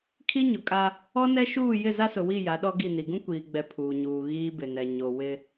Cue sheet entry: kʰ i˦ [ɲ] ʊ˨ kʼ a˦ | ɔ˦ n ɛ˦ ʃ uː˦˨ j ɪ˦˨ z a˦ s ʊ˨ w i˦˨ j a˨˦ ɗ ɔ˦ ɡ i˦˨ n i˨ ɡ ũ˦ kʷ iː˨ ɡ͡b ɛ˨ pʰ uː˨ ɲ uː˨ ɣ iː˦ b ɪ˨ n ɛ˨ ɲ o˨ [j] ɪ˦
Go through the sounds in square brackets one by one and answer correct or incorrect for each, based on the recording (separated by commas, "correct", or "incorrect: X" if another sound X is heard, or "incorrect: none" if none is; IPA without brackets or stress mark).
correct, incorrect: w